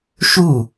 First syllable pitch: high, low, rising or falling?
falling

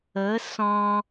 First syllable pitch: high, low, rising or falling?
rising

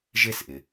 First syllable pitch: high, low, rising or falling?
high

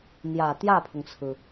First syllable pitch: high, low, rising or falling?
low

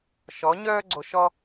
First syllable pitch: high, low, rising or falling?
rising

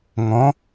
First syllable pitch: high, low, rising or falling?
rising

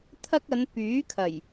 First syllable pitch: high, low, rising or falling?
high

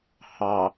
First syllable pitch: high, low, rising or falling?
low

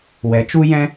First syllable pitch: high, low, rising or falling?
rising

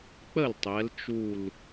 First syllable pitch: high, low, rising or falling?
falling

